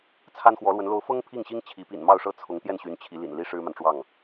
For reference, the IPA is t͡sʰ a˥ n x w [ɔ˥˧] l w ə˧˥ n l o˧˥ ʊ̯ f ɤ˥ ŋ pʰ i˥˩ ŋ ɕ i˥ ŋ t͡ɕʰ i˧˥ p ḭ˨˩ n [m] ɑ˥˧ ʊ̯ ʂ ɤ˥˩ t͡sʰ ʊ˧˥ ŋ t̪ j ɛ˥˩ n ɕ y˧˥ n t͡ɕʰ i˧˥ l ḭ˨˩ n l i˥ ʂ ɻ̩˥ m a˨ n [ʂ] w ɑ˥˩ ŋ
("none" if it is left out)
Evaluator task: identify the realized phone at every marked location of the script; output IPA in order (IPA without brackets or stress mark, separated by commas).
ɔ˧˥, m, ʈ͡ʂ